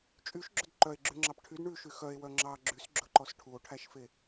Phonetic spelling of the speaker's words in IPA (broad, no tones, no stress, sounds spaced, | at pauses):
t͡ʃʼ y ʃ ɡ͡ǁ ɵ d ǃ œ e̯ ɡ͡ǁ ʉ ŋ͡ǁ ɑ p ʈʰ y d ɳ ʉ ʃ y x œ e̯ w œ ŋ͡ǁ ɑ ɡ͡ǁ y s ɡ͡ǁ ɵ ǃ ɔ s ʈʰ u o̯ ʈʰ æ ʃ f e